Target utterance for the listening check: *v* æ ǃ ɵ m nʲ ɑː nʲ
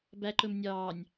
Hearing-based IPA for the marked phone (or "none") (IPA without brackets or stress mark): b